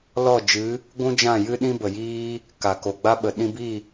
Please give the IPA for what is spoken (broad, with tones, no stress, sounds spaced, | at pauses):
l ɔ˦˨ d͡ʒ ɨ˨˦ | ɡʷ ũ˦ d͡ʒ ã˦˨ j ɨ˦ ɗ ĩ˦ b ə˨ j iː˦ | k a˨ k o˨ ɡ͡b a˦ ɓ ə˨ ɗ ĩ˧ b i˦˨